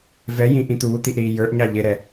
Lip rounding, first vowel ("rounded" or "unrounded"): unrounded